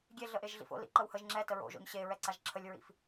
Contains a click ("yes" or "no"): yes